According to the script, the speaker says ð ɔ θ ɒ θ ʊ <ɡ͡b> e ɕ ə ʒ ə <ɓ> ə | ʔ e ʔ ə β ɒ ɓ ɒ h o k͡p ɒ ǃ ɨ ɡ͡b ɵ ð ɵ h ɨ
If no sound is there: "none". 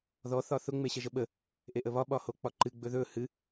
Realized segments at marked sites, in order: ŋ͡m, ɓ

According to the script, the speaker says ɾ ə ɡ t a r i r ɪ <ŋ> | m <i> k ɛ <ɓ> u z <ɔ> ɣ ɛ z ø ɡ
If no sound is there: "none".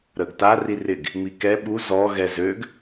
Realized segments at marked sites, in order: ɡ, i, ɓ, ɔ

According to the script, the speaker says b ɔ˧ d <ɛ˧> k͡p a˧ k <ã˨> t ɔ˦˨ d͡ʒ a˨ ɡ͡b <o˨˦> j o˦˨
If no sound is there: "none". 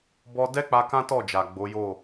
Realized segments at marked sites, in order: ɛ˦, ã˦, o˨˦

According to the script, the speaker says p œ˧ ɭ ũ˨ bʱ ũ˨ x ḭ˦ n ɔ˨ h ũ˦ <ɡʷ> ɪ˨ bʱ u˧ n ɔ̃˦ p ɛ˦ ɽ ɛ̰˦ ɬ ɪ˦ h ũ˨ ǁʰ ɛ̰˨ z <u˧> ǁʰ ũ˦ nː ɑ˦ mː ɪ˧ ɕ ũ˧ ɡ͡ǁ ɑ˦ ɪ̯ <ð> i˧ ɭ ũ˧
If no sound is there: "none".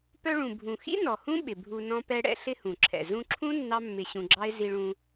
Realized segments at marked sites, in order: ɓ, ũ˧, z

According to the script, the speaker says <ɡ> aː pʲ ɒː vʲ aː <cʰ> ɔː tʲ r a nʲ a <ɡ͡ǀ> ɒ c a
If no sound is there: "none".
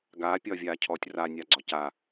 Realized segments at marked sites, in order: ɡ, cʰ, ɡ͡ǀ

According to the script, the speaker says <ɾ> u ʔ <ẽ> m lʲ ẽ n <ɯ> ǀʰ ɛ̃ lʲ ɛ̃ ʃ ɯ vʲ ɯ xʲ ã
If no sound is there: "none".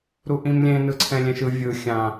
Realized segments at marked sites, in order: ɾ, ĩ, ɯ

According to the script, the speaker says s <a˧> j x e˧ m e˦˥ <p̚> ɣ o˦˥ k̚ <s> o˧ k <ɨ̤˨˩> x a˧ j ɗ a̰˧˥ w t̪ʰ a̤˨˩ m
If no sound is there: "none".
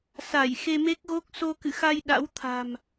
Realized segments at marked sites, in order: a˧˩, k̚, s, ɨ̰˧˨

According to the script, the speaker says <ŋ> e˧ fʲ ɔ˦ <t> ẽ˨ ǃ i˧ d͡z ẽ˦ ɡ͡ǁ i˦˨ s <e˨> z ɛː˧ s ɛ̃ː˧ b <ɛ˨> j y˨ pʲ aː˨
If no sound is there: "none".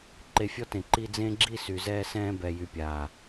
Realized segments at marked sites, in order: ǃ, t, y˨, ɛ˨

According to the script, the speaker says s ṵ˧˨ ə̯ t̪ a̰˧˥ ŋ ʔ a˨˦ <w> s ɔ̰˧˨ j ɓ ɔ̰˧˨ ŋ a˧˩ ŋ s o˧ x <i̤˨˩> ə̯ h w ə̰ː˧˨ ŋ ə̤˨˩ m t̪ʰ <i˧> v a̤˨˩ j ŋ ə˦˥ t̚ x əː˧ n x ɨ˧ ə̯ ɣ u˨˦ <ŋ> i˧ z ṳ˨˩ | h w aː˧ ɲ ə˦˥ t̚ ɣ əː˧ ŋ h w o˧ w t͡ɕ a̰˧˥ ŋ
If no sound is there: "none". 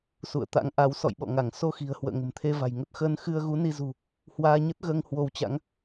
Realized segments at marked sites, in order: w, i̤˨˩, e˧, n

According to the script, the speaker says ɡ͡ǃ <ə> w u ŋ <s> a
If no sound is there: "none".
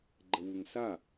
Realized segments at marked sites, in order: ə, s

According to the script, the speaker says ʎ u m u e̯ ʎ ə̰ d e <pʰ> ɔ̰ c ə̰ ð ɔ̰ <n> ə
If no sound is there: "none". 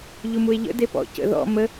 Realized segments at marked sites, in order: p, m

